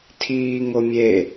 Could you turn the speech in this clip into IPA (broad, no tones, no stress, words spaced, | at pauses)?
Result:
tʰiːŋomʲe